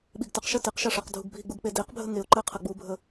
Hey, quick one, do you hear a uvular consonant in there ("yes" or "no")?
yes